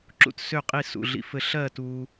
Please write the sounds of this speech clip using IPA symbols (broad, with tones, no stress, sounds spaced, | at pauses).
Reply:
ǁ ṵ˥˧ t s ø˥˧ qʼ i˥˧ s ṵ˥˧ ɮ ḭ˥ f ɘ˥ ɬ ɜ˥˧ t u˥